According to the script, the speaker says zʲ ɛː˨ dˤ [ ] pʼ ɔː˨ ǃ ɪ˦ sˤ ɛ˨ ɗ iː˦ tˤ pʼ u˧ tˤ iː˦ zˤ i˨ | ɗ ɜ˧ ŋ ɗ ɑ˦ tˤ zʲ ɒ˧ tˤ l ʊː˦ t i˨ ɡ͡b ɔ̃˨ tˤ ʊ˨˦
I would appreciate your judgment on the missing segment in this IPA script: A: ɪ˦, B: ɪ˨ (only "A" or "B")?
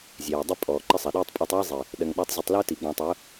A